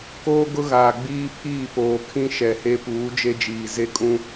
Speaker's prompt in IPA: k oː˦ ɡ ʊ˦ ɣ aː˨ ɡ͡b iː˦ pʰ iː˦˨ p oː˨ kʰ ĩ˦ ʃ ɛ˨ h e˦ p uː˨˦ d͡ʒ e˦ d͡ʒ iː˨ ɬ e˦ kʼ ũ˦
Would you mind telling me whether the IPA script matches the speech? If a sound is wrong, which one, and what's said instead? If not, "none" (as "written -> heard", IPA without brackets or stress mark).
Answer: ɬ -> z